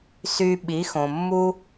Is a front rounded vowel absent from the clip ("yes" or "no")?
no